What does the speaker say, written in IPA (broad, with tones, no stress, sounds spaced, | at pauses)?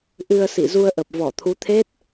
ʔ ɨ˧ ə̯ s ḭ˧˨ z u˧ ə̯ ʔ ə˨˩ p̚ v ɔ˧˩ t̪ʰ u˨˦ t̪ʰ e˦˥ t̚